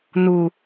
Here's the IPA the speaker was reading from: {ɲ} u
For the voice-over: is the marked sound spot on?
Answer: no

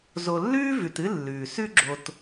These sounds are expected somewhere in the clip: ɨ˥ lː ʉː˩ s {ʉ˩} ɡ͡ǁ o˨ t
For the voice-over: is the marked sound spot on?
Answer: no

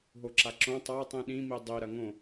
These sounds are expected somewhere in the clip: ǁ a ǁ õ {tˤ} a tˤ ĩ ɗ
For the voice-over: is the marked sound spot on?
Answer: yes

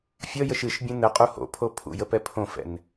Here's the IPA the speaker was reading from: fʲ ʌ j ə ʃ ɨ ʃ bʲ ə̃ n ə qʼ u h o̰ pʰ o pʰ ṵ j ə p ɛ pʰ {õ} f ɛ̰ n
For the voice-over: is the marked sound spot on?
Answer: yes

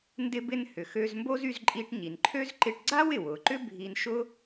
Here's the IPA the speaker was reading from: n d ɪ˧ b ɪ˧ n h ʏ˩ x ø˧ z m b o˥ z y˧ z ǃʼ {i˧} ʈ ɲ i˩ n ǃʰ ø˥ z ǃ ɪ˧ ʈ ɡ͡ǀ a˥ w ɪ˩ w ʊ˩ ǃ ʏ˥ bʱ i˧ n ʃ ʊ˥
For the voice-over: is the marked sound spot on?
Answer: yes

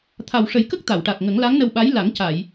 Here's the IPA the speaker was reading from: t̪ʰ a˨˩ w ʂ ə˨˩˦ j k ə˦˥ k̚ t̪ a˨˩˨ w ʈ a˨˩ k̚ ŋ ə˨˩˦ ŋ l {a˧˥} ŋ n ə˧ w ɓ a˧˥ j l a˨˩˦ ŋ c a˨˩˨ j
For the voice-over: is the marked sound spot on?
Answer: yes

